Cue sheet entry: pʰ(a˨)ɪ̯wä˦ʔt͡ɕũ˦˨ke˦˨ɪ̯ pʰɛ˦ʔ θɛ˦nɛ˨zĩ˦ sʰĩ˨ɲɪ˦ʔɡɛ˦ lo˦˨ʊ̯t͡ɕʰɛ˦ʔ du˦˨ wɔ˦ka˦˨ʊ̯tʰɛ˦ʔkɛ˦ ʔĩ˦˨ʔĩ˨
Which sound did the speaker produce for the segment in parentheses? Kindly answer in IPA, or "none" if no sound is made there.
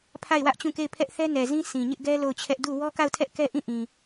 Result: a˦˨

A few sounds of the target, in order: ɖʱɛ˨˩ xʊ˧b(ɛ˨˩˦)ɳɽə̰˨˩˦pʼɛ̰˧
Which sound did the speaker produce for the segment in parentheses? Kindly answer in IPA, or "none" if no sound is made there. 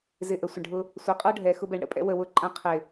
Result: ɛ˨˩˦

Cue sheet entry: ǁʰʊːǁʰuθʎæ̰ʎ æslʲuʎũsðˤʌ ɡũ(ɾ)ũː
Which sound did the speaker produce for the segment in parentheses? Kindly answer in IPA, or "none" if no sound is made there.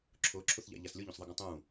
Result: tˤ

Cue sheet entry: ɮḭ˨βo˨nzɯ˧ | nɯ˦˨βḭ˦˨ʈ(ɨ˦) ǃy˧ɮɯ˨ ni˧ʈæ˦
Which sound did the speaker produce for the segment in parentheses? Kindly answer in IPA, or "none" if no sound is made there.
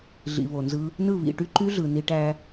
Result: y˦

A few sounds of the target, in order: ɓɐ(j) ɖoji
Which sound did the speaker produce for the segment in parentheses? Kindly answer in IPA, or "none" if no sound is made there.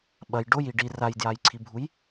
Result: j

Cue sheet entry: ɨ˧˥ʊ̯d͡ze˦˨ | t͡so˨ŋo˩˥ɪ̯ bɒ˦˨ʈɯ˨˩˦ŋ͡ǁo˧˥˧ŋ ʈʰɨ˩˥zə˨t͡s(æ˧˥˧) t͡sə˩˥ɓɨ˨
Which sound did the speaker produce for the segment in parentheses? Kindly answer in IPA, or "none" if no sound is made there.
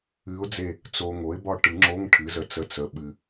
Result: ə˧˥˧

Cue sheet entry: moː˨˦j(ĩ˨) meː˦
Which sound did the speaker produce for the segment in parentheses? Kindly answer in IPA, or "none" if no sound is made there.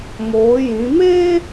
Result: ĩ˨˦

